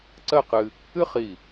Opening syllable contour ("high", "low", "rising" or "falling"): falling